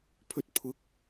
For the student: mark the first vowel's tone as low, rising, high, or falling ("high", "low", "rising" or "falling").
high